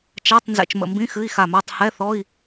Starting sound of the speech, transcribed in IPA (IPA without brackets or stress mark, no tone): t͡ʃ